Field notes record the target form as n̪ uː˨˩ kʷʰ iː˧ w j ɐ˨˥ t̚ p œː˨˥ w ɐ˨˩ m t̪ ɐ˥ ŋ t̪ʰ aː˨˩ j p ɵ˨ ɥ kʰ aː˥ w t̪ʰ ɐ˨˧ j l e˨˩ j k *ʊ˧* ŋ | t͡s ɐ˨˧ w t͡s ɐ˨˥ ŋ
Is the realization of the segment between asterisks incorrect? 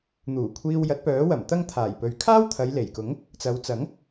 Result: yes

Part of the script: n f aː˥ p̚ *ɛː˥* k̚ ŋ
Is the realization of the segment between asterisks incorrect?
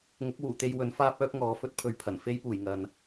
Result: yes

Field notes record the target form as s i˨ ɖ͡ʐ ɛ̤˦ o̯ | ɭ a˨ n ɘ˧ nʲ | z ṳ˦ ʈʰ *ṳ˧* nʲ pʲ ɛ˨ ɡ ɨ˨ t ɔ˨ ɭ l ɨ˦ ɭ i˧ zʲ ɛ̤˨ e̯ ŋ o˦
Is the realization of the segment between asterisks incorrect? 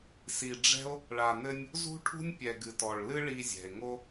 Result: yes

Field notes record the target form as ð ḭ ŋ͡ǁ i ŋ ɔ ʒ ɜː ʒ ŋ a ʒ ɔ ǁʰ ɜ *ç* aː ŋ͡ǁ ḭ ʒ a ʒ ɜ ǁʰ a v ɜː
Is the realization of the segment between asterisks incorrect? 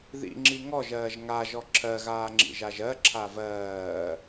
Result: yes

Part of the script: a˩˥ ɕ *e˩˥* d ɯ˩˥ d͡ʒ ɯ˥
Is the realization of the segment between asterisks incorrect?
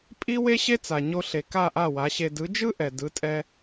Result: yes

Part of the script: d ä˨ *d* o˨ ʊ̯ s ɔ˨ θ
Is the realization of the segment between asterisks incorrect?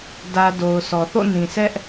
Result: no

